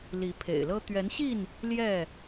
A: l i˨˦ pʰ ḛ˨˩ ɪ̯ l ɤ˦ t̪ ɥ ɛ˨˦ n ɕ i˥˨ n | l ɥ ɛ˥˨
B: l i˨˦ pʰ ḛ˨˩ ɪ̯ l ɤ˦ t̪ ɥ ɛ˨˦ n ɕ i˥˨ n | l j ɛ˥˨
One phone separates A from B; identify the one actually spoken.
B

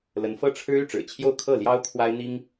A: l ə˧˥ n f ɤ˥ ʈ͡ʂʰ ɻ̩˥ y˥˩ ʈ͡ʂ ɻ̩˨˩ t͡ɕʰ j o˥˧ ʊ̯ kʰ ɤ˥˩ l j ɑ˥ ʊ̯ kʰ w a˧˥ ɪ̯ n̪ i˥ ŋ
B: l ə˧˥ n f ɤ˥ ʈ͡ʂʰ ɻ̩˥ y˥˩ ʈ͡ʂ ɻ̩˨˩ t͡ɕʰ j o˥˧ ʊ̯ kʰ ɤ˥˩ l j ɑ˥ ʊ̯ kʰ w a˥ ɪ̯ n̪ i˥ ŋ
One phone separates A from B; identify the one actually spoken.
B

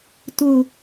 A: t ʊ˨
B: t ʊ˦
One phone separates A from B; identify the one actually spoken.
A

